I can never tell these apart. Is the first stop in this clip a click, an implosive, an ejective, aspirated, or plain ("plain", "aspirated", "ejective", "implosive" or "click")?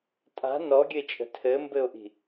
ejective